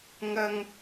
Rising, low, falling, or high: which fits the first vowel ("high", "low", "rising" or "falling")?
high